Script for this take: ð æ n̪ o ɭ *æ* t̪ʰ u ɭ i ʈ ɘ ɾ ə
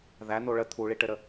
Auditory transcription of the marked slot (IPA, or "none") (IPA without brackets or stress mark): ə